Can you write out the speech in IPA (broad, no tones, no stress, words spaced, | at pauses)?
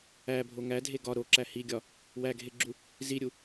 æbʱo ŋædʱe ɡɒ ɾoǁæ hiɡʲɒ | wæɡʱeɡ͡ǁu | ziɾʲu